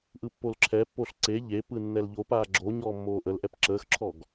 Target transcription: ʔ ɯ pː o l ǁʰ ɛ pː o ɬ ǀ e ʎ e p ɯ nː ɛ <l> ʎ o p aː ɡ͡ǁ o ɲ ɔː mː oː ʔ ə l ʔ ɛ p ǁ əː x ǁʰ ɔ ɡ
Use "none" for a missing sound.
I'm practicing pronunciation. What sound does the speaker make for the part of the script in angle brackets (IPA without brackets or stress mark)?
l